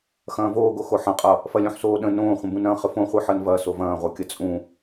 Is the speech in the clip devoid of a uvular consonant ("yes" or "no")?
no